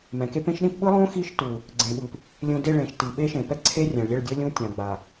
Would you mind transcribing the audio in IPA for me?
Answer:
m ɛ̃˨ k e˦ p ẽ˦ ʃ ɗ ĩ˦ p ɓ ɯ˦ lˠ õ˦ x i˦ ʃ t u˨ | ɡ͡ǀ ẽ˨ ɓ ɯ˨ p | lʲ ũ˨ d e˦˨ ɭ ẽ˨ ʃ t i˨ ɓ e˦ ʃ ẽ˨ p ɛ˦ ǀʰ e˦ rʲ ɛ̃˨ ɭ lʲ ɛ˦˨ ɭ dʲ ɤ˦ lʲ ũ˦ tʲ ã˨ ɡ͡b a˨

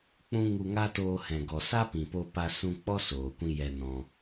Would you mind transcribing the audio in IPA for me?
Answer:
k͡p ũ˦ ŋ u˧ ŋ a˦ t oː˧ h ɛ̃˨ ɡ ɔ˨ s a˦ p ĩ˨ p o˧ p a˧ s ũ˧ k͡p ɔ˦ s oː˨ kʷ ĩ˧ j ɛ˧ n ɔ̃˧

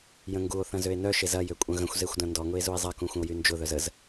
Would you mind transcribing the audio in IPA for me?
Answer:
j ə̃ ŋ ɡ u o̯ θ ɐ̃ z ø e̯ n œ ʃ e z ɐ j ø kʷʼ ɐ̃ ɣ ə̃ xʷ z e xʷ d ɐ̃ n d ɔ ŋ ʊ e̯ z u e̯ zˤ ɐ k ũ xʷ ə̃ o̯ j y n d͡ʒ ʊ ð œ z ə z

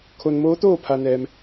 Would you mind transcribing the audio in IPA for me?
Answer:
kʰ o˧ n m oː˧˥ t̪ oː˥˨ pʰ a˧ n ɛː˧ m

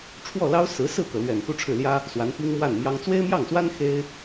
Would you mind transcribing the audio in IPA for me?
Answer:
ʈ͡ʂʰ w ɔ˥˩ l ɑ˥ ʊ̯ s ɹ̩˧˥ s ɹ̩˥˩ k ɤ˩ l ɥ ɛ˨˩ n x u˥ ʈ͡ʂʰ ɻ̩˥˩ l j ä˥ | s w a˧˥ n p i˥ ŋ m w a˥˩ n m j ɑ˥ ŋ t͡s w e˥ ɪ̯ m j ɑ˥˩ ŋ s w a˥ n x e˥ ɪ̯

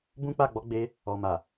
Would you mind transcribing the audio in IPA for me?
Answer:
b ũ˦ k͡p a˦˨ ɡ͡b ɔ˨˦ ɡ͡b e˧ | ɔ˨ m a˨

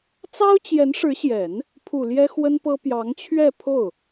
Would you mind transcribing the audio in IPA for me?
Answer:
t͡s ɑ˥ ʊ̯ t͡ɕ j ɛ˧˥ n ʂ ɻ̩˧˥ ɕ j ɛ˨˩˦ n | pʰ u˨˩ l j ɛ˥ x w ə˥ n p ɤ˥ p j ɑ˧˥ ŋ t͡ɕʰ ɥ ɛ˥˧ pʰ o˥˩ ʊ̯

